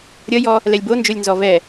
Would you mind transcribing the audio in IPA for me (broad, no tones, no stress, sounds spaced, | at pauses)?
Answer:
ɾʲ ʌ j ɔ | l ɛ lʲ b o n d͡ʒ o lʲ n z ɔ v ɛ